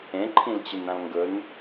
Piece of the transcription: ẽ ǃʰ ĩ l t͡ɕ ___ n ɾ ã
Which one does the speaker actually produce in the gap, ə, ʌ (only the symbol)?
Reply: ə